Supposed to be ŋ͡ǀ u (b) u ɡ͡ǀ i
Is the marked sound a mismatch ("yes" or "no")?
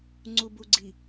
no